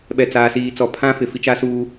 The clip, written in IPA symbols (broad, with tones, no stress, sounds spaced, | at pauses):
ɓ ɛ˨ t͡s aː˨ s iː˨ t͡s ɔ˨ pʰ ã˦ f ɪ˨ f i˦ t͡ʃ a˦ s uː˦